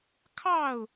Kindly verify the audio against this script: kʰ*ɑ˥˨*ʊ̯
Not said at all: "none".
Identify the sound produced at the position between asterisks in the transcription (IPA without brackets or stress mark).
ɑ˥˨